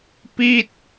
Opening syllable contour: falling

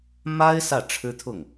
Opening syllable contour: high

